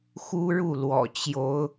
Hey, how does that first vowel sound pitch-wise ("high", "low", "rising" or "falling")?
high